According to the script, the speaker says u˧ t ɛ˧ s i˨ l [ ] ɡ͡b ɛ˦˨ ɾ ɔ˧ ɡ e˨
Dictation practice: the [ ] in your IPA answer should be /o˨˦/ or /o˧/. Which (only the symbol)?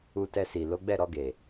o˨˦